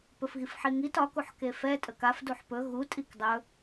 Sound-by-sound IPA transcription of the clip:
p ɵ f ɣ i f ħ i ŋ i t ɒ k u ħ k e f ɛ tʼ ə k a f d u ħ p ɵ ɣ u tʼ i k dˤ ɵ

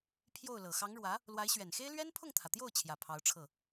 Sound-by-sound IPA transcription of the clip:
pʰ j o˥˩ ʊ̯ l ɤ˨˩ x ɑ˧˥ ŋ ɻ w ä˧˥ | l w a˧˥ ɪ̯ ɕ ɥ ɛ˨˩ n x e˥ ɪ̯ l ɥ ɛ˥ n pʰ ʊ˥˩ ŋ t̪ʰ ä˩ t̪ j o˥˩ ʊ̯ t͡ɕʰ j ä˨˩ pʰ ɑ˧˥ ʊ̯ ʈ͡ʂʰ ɤ˥˩

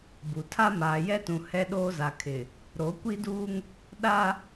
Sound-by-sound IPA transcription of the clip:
b u˨ tʰ a˦ m aː˨ j ɛ˦ t ũ˨ h ɛ˦ ɗ oː˦ z a˨ kʰ ɪ˨ | ɾ o˨˦ kʷ i˦ d uː˦ ŋ | ɗ a˦

